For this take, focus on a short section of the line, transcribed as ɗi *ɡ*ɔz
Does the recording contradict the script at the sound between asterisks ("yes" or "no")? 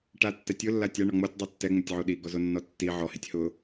no